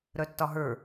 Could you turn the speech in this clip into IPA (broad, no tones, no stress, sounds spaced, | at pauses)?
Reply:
ɾ œ tː ɒ ɦ ə˞